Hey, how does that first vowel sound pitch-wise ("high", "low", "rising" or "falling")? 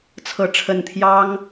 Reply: rising